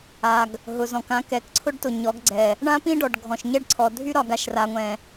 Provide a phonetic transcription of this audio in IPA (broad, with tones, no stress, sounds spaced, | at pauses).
a˨ ɡ | ɦ ʊ˨ z ɔ̃˨ k ã˨˦ k ɛ˨ k ǀʰ ʊ˦ ɖ t ʊ˨ ɲ ɔ˨˦ ɡ ɡ͡ǀ ɛ˨ | ɳ ã˦ p ĩ˦ ɖ ɔ˨ ɖ ɡʱ ɔ̃˨ ʃ ɲ ɛ˦ ɖ ǀʰ ɔ˨ dʱ y˦ ɾ ɒ˨ ɡ a˨ ʃ r a˨ ŋʷ ɛ̃˨